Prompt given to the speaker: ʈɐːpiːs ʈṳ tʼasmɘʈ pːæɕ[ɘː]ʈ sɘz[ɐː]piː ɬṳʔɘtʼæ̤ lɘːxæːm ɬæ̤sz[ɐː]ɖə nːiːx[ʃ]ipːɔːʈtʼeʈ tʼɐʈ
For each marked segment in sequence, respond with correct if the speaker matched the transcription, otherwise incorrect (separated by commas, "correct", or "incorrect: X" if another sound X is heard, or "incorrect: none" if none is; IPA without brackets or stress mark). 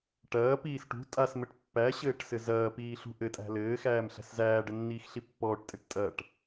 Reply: correct, correct, incorrect: æː, incorrect: ɬ